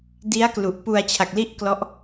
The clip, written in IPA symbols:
d i˦˥ a̯ k l u˨˩ ʔ p u˧ a̯ t͡ɕʰ a˨˩ k̚ l i˥˩ ʔ k l ɔ˦˥ ʔ

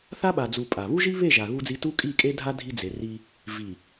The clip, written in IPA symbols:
θ a˦ ɓ a˨ d͡z u˨ pʼ a˨ β u˦ ʒ i˦ β e˦˨ ʒ a˨ ɣ u˦ d͡z i˦ t u˦ kʼ i˦˨ kʼ e˦ dʱ a˦ dʱ i˦ d͡z e˨ r i˦ | v i˨

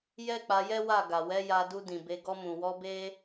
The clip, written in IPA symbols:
j ɛ˦ k͡p a˧ j ɛ˦ w a˦˨ ɡ a˨ w ɛ˨˦ j a˧ d u˧ d ĩ˨ b e˧ ɡ ɔ˧ m ũ˨ w ɔ˧ b e˦

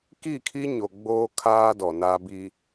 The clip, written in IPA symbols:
k i˦˨ kʰ i˦ ɲ o˨ ɡ͡b oː˦ kʰ aː˦ d ɔ˨ n a˦ b i˦

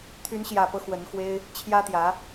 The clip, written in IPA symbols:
t̪ʰ y˧˥ n ɕ j ä˨˩ p ɤ˦ x w ə˧˥ n x w e˥ ɪ̯ | t͡ɕʰ j ä˥ t̪ j ä˧˥

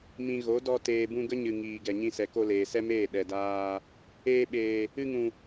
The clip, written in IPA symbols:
m ĩ˨ ɣ o˨˦ d ɔ˧ t eː˨ b ũ˧ ɡ ə˦ ɲ ɨ˨ ŋ iː˨ ɡ ɛ˨ ɲ ĩ˧ s ɛ˨ k o˧ l eː˨ s ɛ˦ m eː˦˨ ɗ ɛ˨ d aː˧ | eː˧ ɓ eː˨ | ɨ˧ ŋ ũ˨

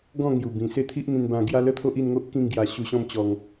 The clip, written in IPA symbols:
ɡ ɔ̃˥˧ ŋ j u˨˩ b ĩ˨˩ s e˥˧ t̪ʰ i˦ ʔ n̪ ĩ˧ n b ã˧ ɡ j a˦ l ə˦ t̪ʰ o˦ ʔ i˥˧ n ŋ o˦ ʔ k ĩ˥˧ ŋ ɡ j a˧ ɕ u˧ ɕ ɔ̃˥˧ m t͡ɕ ɔ˧ ŋ

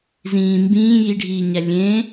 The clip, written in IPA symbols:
z ĩː m b ĩː j i ɖʱ iː ɲ æ lʲ ẽ

